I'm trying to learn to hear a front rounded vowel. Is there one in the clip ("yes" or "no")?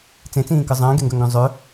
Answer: yes